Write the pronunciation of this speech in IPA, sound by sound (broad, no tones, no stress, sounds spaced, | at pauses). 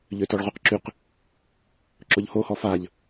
ʎ ø t ɔ ɭ ʁ u q ǁ y q | ǁ ʊ ʎ h o h ɔ f a ʎ